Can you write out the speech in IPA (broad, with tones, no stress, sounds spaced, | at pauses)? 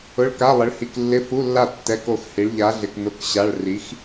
ʊ˧˥˧ ɭ k a˧˥˧ lˠ ɪ˨˥ ɭ h i˨ k lː ɪ˧˥˧ f u˧˥˧ lː a˥˩ tː ɛ˧˥˧ k o˥˩ x h i˨˥ ɭ ʎ a˨˥ ɮ ɪ˨ k n ʊ˧˥˧ k ɕ a˧˥˧ ɭ r i˨˥ x